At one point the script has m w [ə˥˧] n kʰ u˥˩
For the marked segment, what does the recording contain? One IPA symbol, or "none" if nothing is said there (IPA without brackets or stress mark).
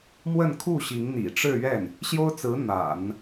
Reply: ə˥˧